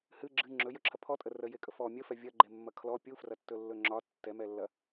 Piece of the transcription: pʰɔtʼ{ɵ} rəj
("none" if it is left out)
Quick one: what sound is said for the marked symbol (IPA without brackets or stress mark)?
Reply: ə